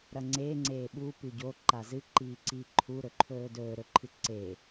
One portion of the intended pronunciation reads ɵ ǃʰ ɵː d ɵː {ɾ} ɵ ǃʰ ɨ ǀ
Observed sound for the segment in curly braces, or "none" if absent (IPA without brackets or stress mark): ɾ